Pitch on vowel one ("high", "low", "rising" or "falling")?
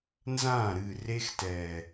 falling